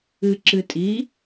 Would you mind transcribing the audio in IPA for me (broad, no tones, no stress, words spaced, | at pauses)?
ɨǁɨtʼi